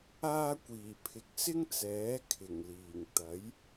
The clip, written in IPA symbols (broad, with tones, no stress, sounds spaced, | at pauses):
aː˥ kʷ iː˨˩ pʰ ɪ˨˥ k̚ s ɪ˥ ŋ t͡s ɛː˨˥ kʰ ɪ˨˩ ŋ l iː˨˩ ŋ t̪ ɐ˨˥ j